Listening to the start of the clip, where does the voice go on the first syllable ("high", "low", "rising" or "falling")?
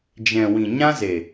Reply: low